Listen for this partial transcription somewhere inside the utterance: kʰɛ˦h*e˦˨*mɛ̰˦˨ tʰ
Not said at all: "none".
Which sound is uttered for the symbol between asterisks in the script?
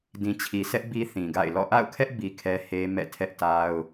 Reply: e˦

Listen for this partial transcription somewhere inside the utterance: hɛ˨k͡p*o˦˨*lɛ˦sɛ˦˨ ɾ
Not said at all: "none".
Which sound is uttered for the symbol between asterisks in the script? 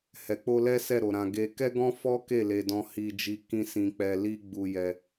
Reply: o˧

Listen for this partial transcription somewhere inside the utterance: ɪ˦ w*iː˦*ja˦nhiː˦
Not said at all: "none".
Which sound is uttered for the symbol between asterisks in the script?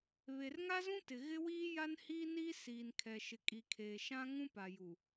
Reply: iː˦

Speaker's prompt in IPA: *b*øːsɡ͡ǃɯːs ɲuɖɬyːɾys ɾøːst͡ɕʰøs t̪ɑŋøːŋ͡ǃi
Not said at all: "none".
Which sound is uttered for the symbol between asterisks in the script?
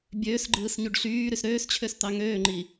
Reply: bʲ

